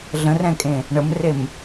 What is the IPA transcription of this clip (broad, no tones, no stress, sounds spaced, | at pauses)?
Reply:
ɮ ə̃ r ɛ̃ kʼ ẽ | ɳ ə m r e m